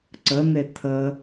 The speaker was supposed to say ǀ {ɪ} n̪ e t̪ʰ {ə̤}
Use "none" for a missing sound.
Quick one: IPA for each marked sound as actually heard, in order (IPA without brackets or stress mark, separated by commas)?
ə, ə